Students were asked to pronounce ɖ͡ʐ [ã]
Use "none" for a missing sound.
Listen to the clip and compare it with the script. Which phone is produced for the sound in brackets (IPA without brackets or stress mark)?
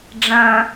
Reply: ɐ̃